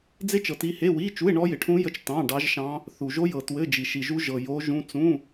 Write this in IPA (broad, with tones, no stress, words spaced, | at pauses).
d͡ze˦˥t͡ʃɤ˨ ti˦˥ he˧˥˧wi˧˥˧t͡ʃu˧˥˧e̯ ɳɔ˦˥jɪ˨ʈʰũ˦˥jə˧˥˧t͡ʃ tɑ̃˧˥˧ɖɑ˦˥ʒʃɑ̃˦˥ | θu˨ʒo˦˥jɤ˨ twɘ˧˥˧d͡ʒi˨ ʃi˨ʒu˦˥ ʒɤ˨ jo˦˥ʒũ˦˥ t͡sũ˧˥˧